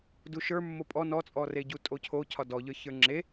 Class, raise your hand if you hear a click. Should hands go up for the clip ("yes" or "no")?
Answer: yes